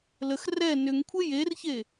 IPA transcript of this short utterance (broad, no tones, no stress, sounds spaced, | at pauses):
l ə x r ɛ n ʏ ŋ kʷʰ e j e r ç e